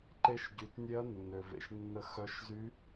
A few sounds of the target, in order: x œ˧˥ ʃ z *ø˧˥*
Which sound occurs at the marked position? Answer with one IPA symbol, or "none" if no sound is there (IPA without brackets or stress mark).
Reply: y˧˥